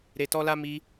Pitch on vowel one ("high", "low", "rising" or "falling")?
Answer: low